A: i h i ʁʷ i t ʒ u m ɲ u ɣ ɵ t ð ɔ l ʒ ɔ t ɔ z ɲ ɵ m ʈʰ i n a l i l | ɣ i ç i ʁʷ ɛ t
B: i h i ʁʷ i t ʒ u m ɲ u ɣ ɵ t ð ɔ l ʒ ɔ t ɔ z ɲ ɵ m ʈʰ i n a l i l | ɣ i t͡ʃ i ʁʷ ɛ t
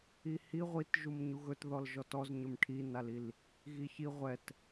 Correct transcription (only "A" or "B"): A